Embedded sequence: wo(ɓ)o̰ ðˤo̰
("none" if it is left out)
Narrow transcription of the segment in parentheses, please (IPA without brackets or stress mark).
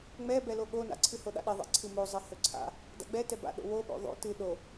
ɓ